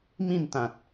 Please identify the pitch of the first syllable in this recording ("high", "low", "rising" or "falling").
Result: falling